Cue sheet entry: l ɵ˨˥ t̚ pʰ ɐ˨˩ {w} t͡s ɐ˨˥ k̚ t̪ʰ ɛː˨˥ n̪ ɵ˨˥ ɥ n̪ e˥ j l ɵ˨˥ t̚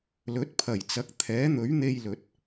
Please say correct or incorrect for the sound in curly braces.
incorrect